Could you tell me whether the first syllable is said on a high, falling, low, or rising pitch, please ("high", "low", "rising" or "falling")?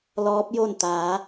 rising